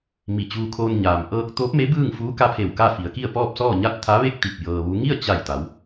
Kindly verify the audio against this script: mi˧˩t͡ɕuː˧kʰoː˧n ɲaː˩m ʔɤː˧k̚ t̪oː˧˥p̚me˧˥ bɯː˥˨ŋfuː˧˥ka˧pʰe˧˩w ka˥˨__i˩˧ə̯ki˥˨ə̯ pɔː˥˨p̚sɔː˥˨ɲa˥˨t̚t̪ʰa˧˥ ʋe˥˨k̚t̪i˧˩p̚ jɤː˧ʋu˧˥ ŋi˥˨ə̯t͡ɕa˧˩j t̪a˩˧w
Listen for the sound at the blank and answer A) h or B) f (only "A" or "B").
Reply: B